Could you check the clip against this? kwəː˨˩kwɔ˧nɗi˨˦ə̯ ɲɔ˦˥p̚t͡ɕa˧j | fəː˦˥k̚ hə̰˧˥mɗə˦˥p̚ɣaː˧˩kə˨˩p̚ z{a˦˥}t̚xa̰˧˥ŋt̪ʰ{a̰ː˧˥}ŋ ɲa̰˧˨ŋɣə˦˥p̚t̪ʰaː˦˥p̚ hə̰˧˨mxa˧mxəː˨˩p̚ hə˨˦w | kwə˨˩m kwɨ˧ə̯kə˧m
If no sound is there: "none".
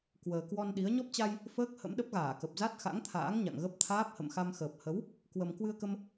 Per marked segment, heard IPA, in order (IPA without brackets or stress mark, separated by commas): a˦˥, a̰ː˧˥